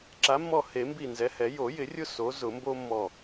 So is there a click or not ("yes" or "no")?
yes